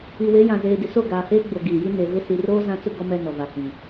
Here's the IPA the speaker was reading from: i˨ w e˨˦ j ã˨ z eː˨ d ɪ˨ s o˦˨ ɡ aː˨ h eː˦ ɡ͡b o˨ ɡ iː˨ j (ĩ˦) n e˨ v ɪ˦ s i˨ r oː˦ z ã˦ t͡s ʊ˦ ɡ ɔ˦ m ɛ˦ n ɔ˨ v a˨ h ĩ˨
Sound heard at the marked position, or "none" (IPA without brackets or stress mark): i˦